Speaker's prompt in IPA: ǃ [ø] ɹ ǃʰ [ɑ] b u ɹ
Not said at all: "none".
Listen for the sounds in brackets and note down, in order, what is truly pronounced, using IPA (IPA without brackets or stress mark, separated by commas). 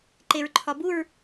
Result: e, ɒ